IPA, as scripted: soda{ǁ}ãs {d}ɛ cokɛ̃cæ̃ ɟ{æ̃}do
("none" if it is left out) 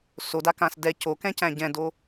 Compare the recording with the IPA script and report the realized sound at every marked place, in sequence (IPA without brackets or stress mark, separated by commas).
k, d, ɛ̃